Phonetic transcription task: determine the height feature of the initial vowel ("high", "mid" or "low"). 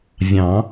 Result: low